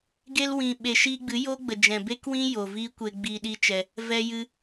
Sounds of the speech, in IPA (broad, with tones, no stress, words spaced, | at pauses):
ɡe˧lwĩ˨ɓe˨ ʃiː˧ɡ͡bɨ˨˦jo˦ ɡ͡bə˨d͡ʒɛ̃˨be˦kwĩ˦ jo˨viː˦kʷe˧ ɡ͡biː˧ɗi˦t͡ʃɛ˧ | vɛ˧jɨ˧